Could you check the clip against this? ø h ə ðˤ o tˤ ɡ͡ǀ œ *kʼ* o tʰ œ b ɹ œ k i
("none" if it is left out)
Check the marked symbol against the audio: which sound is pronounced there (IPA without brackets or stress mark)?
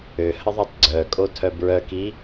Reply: kʼ